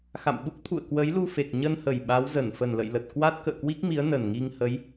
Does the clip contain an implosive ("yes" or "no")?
yes